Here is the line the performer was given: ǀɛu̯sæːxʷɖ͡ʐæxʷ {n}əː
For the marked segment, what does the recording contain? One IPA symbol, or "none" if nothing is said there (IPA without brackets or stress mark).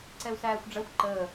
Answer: ǃ